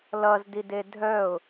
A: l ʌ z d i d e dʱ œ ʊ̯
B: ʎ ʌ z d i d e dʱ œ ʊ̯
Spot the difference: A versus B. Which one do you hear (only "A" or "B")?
A